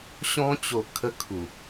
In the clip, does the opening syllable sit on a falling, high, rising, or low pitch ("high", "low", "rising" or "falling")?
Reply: high